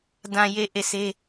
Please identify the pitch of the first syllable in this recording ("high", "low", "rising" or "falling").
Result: low